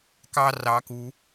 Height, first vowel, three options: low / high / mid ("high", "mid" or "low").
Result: low